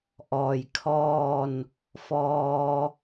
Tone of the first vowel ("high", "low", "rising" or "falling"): low